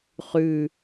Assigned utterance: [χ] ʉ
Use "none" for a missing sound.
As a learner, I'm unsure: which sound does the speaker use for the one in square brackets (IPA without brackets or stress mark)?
χ